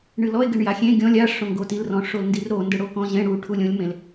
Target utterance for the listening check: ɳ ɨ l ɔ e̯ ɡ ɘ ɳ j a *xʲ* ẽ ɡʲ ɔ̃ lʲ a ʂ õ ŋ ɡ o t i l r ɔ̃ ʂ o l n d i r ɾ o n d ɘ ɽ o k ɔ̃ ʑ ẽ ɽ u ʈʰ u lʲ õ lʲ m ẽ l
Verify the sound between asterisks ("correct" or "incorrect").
correct